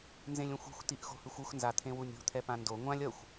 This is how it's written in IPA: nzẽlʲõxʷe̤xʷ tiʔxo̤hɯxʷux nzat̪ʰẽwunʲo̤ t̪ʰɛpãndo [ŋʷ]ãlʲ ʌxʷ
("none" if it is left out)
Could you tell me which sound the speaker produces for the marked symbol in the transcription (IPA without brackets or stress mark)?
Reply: ŋʷ